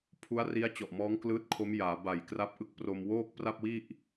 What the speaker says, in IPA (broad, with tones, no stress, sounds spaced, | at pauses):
pʰ u˦˥ a̯ r i˦˥ a̯ t͡ɕ ɔ˨˩ ʔ m ɔː˦˥ ŋ k l ɯː˦˥ t̚ kʰ o˦˥ m j aː˩˦ b a˨˩ j k r a˦˥ p̚ ʔ ɯ˥˩ k̚ p r o˧ m w oː˥˩ k̚ p r a˥˩ p̚ w i˥˩ ʔ